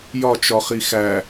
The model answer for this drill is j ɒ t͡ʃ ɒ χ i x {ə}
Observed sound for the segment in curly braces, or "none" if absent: æ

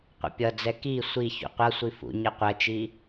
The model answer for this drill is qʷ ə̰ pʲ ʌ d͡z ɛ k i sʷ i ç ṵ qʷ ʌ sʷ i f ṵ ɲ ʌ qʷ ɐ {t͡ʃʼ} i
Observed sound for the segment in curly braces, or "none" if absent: t͡ʃ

